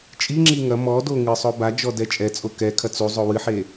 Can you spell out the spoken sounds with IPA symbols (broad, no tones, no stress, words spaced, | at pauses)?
t͡ʃʼiŋ͡ǁi ŋɐ mɔdo ŋɨsˤo bad͡ʒɔ dɛt͡ʃʼɛt͡sʼo kɛ kʰɐt͡suzˤo wɨħe